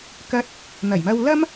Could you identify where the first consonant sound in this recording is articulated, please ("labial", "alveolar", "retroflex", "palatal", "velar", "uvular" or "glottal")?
velar